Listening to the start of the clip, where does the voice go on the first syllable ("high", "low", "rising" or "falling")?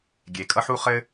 low